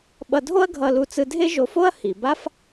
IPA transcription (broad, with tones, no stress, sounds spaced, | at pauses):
ɓ ʌ˧ dʱ o˥ ɐ̯ ɡʱ ʌ˧ l u˧ t͡s ɯ˧ dʱ e˥ ʒ o˧ f o˥ ɐ̯ h i˩ b a˥ f